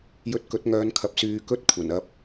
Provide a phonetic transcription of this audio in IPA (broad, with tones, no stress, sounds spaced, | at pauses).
j ɵ˧ t̚ k ɵ˨˥ t̚ ŋ œː˨˧ n kʰ ɐ˨ p̚ s yː˧ k ɵ˥ t̚ kʷʰ ɐ˨˩ n ɐ˧ p̚